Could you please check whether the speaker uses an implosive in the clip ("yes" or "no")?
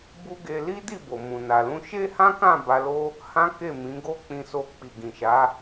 no